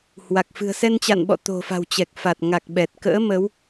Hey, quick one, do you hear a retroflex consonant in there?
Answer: no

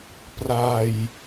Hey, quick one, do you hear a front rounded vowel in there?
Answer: no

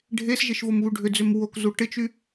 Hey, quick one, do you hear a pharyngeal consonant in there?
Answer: no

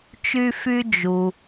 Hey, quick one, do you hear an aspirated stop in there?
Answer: no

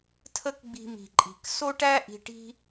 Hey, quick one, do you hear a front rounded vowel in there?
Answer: no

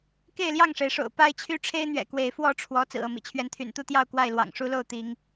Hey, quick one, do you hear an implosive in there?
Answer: no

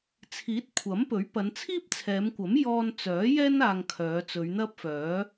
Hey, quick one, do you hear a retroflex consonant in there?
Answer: no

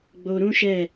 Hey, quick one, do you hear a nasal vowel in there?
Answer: yes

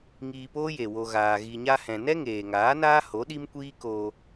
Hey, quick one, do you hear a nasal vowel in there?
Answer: yes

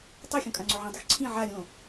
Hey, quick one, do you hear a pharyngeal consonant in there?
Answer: yes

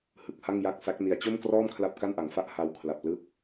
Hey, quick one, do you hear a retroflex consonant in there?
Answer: no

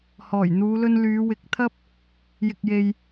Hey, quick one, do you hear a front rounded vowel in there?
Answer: yes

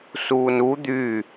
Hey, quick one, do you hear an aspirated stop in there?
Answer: no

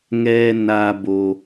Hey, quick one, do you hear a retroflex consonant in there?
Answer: no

